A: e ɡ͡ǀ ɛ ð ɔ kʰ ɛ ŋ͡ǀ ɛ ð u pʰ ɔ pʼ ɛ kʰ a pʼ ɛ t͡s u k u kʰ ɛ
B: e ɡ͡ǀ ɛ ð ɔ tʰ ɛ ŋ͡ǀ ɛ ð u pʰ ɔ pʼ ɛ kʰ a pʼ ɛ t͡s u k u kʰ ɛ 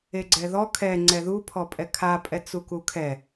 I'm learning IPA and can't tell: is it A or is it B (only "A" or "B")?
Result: A